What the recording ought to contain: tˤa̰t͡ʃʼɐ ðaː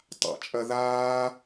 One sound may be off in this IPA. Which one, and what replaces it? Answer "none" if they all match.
none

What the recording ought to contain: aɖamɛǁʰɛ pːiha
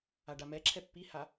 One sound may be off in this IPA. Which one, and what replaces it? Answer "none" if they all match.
none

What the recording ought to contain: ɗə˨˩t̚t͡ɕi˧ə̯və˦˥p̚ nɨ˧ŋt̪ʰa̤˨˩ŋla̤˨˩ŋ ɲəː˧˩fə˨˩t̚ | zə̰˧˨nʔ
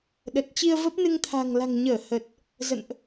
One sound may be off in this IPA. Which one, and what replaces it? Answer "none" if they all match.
f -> h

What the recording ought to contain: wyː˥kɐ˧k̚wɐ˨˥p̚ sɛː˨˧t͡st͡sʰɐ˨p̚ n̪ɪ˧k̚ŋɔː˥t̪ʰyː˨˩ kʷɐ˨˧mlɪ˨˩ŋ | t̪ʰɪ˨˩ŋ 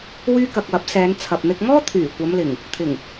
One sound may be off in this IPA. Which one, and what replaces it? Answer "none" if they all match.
t͡s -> n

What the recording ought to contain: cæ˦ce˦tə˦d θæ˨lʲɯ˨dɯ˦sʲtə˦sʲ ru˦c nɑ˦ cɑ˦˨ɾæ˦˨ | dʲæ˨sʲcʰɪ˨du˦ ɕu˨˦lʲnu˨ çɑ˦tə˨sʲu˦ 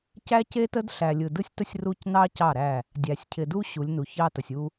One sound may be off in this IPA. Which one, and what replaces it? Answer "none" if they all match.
θ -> ɬ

